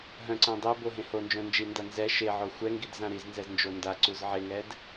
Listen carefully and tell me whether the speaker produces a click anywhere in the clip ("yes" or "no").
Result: yes